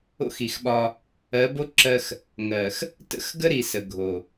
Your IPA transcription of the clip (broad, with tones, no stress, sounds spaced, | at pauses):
o̰˦ x i˨ x ɓ ɒ˦ | ɜ˨˦ b o˦ ǁ ɜ˦ x | ŋ ɜ˨ x | t ə̰˦ x ɡ ə˦ ɾ i˨ s ə˨ ɡʱ o˨